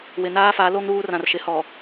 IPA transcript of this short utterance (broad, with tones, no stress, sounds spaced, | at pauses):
w ɪ˨ n aː˦ f a˨˦ l o˦ ŋ ɾ uː˦ r ã˨ r ʃ ɪ˨˦ h ɔ˨